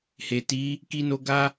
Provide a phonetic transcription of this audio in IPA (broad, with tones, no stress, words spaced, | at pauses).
he˨ti˨˦ | ki˧no˧ ɡa˦